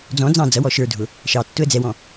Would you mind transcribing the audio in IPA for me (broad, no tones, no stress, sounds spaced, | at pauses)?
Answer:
d͡z ɔ̃ d͡z ɑ̃ d͡z ʌ w ɔ ʃ ə˞ dʱ ʊ | ʃ ɑ tː ʊ ə̯ d͡z ɛ w ɔ̃